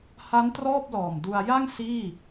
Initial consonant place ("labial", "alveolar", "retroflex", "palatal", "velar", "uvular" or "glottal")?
glottal